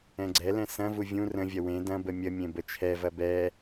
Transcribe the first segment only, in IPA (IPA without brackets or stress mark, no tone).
ɛ̃